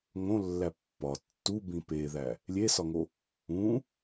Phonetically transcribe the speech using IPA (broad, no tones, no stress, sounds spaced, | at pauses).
ŋ õ lː æ pː ɒ tː u b ĩ p e ð æ | lʲ e s ɒ ŋ o | ũ